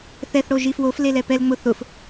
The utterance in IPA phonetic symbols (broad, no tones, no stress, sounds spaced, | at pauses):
θ ɛ θ ɽ o ʒ i f w o f l e l ɛ p ɛ l ŋ͡m ʊ θ ʊ f